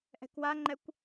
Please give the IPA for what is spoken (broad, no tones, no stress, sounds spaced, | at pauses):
ʔ ɛ̤ k w a ŋ͡ǃ ɛ kʷ